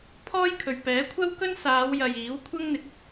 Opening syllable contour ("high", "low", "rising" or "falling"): high